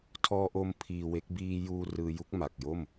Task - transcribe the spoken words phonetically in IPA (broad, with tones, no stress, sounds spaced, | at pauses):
tʰ ɔː˧ ʔ o˧ m pʰ iː˧ w e˦˥ k̚ b iː˧ j uː˧ r ɯː˧ j u˦˥ k̚ m a˨˩ k̚ j o˥˩ m